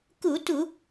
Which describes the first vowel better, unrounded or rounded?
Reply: rounded